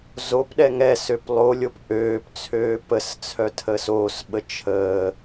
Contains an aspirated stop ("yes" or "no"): yes